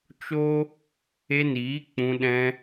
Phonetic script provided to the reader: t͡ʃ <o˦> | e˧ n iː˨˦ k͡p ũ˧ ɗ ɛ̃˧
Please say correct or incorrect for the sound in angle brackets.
correct